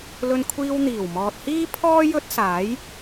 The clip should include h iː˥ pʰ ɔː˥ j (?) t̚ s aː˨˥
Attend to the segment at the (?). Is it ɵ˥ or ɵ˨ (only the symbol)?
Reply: ɵ˥